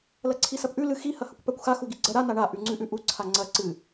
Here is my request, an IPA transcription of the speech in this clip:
l ɐ ǀʰ i s ɐ p ʔ ʉ l ɨ x i h ɐ h ɐ kʷ p a kʷ x a x u ɡ i ɡ͡ǀ ɐ ɾ a n a ɳ a ʔ ʉ ŋ͡ǀ ʉ ʔ ʉ ʔ u ǀʰ a ŋ͡ǀ ɐ ǀ ɨ

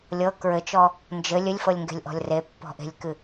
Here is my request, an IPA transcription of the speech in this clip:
lʲ ɤ k ɹ ɘ t͡ʃ ɔ | n d͡ʒ ɘ lʲ ɘ lʲ f ɤ lʲ ŋ ɡ e̤ lʲ ʔ ɔ̤ lʲ r e pː ɔ̤ ʔ e̤ lʲ k ɨ

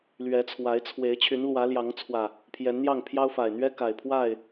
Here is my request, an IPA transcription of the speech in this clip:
l ɥ ɛ˨˦ t͡sʰ w a˨˦ ɪ̯ t͡sʰ w e˨˦ ɪ̯ t͡ɕʰ y˨˦ n l w ä˨˦ l j ɑ˨˦ ŋ t͡sʰ w ä˨˩ | pʰ j ɛ˨˦ n n̪ j ɑ˥˨ ŋ pʰ j ɑ˦ ʊ̯ f a˨˩ ɪ̯ n̪ ɥ ɛ˦ k a˨˩ ɪ̯ pʰ w a˥˨ ɪ̯

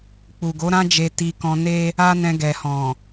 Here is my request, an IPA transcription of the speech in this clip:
k͡p u˨ ɡ o˨˦ ɾ ã˦ d͡ʒ e˧ t i˧ k ɔ̃˧ n e˦ | a˦ n ɛ̃˧ ɡ ɛ˨ h ɔ̃˨

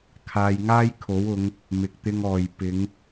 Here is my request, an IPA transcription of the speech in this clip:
kʰ aː˧ j ŋ aː˥ j kʰ o˨˥ w ʊ˨˧ ŋ | m ɪ˨ k̚ t̪ ɪ˧ ŋ ɔː˨ j p ɪ˨˧ ŋ

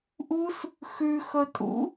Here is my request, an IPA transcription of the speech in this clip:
ʔ u s | x ʉ x ɵ tʼ ṵ

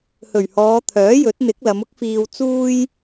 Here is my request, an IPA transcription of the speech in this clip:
h ɵ˨˩ ɥ h ɔː˨˧ t̪ʰ œː˨˥ j ɵ˨˥ t̚ n̪ ɪ˨˥ k̚ l ɐ˨˧ m ʊ˥ k̚ f iː˧ w t͡s uː˥ j

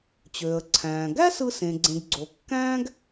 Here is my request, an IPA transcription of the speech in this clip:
t͡ɕ øː˩ ə̯ ǀʰ æ̃ː˩ ɡ æ˥ s ɯ˧ s ẽ˩ ɡ͡ǀ ẽ˩ ɡ ɡ͡ǀ o˩ kː æ̃ː˥ ɡ

